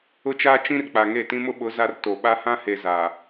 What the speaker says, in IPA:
ʊ˦ t͡ʃ aː˦ t͡ʃ ĩ˦ r k͡p a˨ ŋ e˦˨ t ĩ˦ m ʊ˦ ɓ ʊ˨˦ z a˦ r t o˨ ɓ a˦ h ã˦ h e˨ z a˨

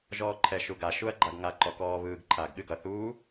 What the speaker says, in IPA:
ʒ ɔː ǃʰ ɛ ʃ u ɡ a ʃ u ɐ̯ ɡ͡ǃ a ɡ ŋ a ǃ ɔ k ɔː β ɯː ɡ ǃʰ aː ɡ ɠ ɨ ɡ ʌ θ uː

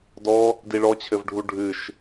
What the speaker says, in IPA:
d ɔ | d i ɭ ɔ t͡ɕʰ ɘ v ɖʱ u ɖʱ ɨ ʃ

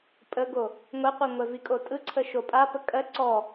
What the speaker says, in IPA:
pʼ ə ɡ o | ŋʷ ɛ qʷ i ŋʷ ɛ v i kʼ o tʼ ɯ ǀʰ ə ʃ o pʼ a p ə kʼ ɜ ǀ ɔ

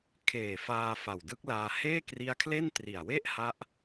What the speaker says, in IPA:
kʰ eː˨˩ f aː˧ f a˨˩ w d ɯ˦˥ k̚ l aː˧ h eː˥˩ k r i˦˥ a̯ kʰ l e˥˩ n t r i˨˩ a̯ w e˥˩ ʔ h a˦˥ ʔ

